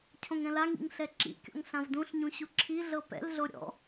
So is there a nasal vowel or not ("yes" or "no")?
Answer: yes